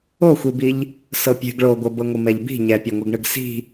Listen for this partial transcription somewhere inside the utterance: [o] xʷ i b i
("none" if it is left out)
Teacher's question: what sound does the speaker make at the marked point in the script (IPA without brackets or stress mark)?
o